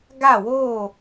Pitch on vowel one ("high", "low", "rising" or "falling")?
falling